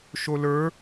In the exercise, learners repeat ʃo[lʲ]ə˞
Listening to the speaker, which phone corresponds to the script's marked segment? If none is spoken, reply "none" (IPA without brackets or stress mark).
l